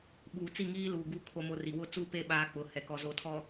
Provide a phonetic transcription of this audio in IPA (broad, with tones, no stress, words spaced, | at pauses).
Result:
ɓuː˨t͡si˦˨ŋiː˦luː˨ ɡu˨ kʰo˦mo˦ri˨ wʊ˦t͡suː˦pe˦˨ ɓaː˦k͡pʊ˨˦ hɛ˨kɔ˨ zo˨tʰɔ˨